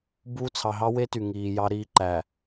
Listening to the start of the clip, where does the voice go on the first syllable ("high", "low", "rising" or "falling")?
high